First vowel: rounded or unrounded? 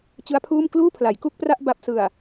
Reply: unrounded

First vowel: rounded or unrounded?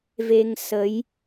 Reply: unrounded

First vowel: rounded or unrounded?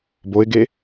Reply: rounded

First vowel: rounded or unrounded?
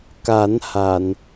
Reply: unrounded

